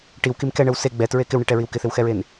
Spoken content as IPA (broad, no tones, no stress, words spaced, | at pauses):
ʈiwkim kɛɳəw se ɡ͡bɛtɹe kɪwɳiʈɛɹiw kɪθɪwxɛɹen